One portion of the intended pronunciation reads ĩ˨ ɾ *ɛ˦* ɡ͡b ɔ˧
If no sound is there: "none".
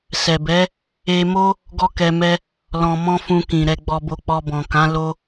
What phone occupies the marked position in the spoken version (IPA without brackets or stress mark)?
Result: ɛ˧